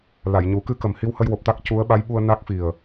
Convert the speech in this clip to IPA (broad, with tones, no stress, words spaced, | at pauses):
la˨˩˨jɲu˨˩˦ kɨ˧kə˨˩m hi˧whə˧jwo˨˩p̚t̪a˦˥k̚ cu˧˥ə̯ ɓa˧˥jɓu˧ə̯ na˦˥k̚fi˨˩ə̯